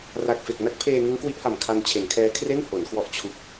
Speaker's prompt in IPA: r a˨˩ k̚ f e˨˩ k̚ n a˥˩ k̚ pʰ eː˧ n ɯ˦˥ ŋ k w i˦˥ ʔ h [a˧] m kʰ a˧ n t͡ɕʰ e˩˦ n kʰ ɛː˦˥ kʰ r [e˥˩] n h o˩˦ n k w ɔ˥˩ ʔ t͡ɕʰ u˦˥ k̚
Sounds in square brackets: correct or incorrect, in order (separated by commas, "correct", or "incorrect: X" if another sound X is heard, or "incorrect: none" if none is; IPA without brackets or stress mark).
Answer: incorrect: a˨˩, correct